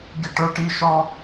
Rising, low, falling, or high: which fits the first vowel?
falling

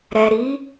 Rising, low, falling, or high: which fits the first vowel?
low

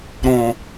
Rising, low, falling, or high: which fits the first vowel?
low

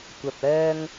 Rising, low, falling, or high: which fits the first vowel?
low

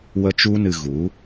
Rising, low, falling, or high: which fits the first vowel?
high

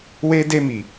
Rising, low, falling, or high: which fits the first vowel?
high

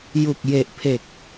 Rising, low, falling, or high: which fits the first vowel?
low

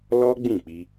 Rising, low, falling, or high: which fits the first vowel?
high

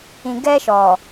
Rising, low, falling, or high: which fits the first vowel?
low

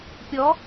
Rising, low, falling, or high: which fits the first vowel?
rising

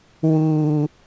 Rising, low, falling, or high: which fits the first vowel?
high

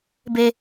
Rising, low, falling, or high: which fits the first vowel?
high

